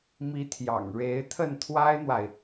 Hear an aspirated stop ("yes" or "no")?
yes